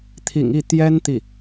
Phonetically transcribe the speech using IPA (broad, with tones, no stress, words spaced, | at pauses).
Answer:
t̪ʰḭ˨˩ŋi˥˩ t̪jɛ˥n t̪i˥˩